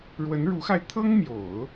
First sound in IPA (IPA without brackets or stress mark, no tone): ɻ